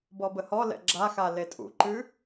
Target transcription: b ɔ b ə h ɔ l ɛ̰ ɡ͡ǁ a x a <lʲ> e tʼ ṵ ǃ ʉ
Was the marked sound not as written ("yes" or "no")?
yes